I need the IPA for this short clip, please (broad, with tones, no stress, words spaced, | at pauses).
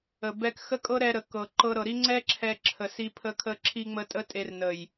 ə˨ bɛ˧kxə˦kʼɤ˦ɾɛ˧ ɾə˨kɤ˨ ǃɤ˧ɾɤ˨ɾi˦ ŋ͡ǀɛ˦ǁʰɛ˧ ǁʰə˨si˧pʰə˧ kʰə˧ǁʰi˧ŋ͡mə˧ tʼə˦tʼe˧rnə˨j